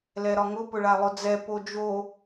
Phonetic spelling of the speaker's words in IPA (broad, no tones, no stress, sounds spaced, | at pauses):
l ɛ ɾ ɒ ŋ ʊ p ʊ ɭ a lˠ ʊ d͡z ɛ p o d͡ʒ o